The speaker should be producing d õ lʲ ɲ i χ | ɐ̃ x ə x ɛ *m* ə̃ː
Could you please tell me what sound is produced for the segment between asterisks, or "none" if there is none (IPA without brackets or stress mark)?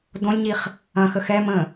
m